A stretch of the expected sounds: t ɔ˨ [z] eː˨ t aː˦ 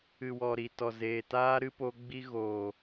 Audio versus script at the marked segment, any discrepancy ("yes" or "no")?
no